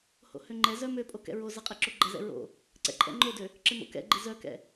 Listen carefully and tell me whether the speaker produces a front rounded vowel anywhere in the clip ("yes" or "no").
yes